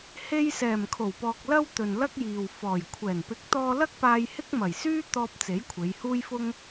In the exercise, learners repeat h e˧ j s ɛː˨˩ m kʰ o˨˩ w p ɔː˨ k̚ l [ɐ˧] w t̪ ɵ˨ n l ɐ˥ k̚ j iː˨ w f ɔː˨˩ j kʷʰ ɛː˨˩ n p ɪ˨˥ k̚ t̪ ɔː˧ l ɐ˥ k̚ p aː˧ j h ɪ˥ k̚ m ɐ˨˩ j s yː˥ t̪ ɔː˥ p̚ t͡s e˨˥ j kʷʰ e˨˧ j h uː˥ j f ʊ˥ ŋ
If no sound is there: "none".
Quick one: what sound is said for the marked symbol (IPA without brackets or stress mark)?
ɐ˧